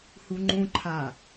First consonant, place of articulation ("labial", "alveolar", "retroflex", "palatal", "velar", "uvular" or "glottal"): glottal